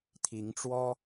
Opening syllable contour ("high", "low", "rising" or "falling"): rising